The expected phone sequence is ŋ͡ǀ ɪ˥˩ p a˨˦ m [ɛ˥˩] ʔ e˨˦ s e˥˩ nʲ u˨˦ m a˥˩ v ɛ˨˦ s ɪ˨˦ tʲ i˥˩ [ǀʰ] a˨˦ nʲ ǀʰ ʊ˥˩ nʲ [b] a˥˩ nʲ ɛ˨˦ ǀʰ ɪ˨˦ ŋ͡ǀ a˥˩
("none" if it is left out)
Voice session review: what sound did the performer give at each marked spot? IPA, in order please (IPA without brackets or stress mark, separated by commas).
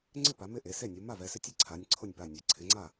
ɪ˥˩, ǀʰ, p